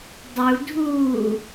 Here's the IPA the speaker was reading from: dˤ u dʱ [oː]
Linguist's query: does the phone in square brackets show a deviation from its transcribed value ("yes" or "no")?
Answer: yes